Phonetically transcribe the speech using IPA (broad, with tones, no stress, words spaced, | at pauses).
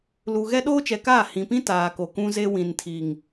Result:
lu˨ɣɛ˦ ɗoː˦t͡ʃɛ˨kaː˦˨ hĩ˨pĩ˦ taː˨ko˨kũ˦ze˦ wĩ˨ntʰi˨ŋ